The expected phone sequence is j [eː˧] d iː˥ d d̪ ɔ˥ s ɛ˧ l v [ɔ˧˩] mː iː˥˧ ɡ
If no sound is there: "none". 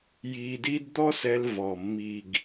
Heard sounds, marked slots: iː˧, ɔ˧˩

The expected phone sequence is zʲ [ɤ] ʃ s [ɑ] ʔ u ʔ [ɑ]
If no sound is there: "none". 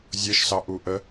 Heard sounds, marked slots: ɤ, ɑ, ə

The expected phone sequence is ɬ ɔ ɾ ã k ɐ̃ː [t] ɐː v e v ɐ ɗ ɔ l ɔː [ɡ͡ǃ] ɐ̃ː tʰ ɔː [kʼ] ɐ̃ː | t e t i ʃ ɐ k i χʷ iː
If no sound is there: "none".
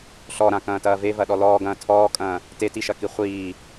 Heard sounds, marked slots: t, ɡ, kʼ

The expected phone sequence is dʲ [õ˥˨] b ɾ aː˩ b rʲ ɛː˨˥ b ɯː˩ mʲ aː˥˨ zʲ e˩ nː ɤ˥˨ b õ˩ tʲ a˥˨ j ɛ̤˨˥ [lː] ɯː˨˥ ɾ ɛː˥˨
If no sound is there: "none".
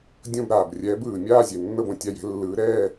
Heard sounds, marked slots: õ˥˨, lː

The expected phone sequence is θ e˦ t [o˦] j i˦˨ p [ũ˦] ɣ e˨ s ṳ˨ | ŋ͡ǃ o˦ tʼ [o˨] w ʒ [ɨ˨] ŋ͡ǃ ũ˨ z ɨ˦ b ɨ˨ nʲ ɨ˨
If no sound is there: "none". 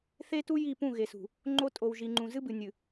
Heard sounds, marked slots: u˦, ũ˦˨, o˨, i˨

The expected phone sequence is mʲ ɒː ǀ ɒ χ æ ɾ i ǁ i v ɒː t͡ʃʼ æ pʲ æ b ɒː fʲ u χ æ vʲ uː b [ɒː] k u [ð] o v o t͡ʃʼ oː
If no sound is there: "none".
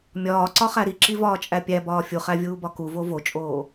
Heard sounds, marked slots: ɒ, v

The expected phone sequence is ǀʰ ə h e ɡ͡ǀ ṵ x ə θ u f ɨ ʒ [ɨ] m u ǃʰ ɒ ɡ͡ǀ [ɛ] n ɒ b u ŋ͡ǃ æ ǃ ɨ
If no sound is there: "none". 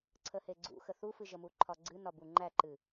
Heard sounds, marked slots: ə, ɨ

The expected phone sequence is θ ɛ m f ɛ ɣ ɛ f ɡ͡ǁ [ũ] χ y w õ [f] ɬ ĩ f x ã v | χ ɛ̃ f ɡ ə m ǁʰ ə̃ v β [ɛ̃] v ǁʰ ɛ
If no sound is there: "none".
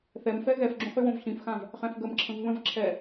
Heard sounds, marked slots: ũ, v, ə̃

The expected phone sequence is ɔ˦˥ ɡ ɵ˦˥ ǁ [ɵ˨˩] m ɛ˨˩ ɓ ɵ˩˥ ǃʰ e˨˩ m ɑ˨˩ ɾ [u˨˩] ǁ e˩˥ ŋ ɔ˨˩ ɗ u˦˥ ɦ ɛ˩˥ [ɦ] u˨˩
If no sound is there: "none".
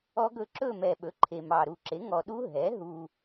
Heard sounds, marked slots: ɵ˥˧, u˨˩, ɦ

